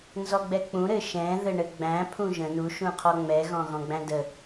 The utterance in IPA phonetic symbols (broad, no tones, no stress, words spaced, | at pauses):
nzɔɡ͡bɛk͡pũ ɾɘʃɛ̃ ðɘɳɘɡ͡bæ̃ pʰũʒə̃ nu ʃũqʰɔŋ͡mɛ ɣɔ̃ɣɔ̃ɡ͡bæ̃də